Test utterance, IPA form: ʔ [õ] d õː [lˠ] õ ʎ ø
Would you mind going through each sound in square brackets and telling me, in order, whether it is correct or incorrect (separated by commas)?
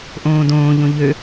incorrect, incorrect